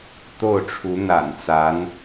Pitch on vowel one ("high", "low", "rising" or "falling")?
falling